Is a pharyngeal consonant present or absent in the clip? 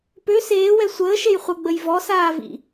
absent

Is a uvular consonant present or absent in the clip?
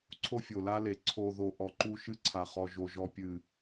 present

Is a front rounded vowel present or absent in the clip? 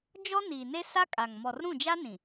absent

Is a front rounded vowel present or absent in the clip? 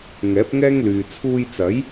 present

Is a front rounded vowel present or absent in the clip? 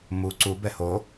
absent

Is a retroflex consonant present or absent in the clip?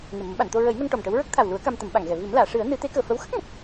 present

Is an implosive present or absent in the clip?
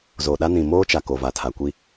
present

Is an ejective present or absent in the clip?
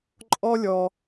present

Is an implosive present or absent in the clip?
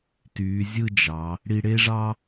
absent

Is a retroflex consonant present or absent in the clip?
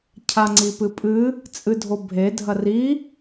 absent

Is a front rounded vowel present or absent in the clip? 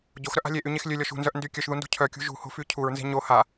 present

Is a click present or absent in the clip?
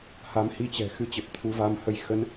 absent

